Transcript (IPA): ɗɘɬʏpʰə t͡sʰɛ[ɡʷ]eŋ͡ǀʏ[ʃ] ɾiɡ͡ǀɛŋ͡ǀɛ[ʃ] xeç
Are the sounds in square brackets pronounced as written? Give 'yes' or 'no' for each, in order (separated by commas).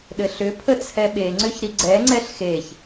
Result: no, no, no